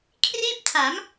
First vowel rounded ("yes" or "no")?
no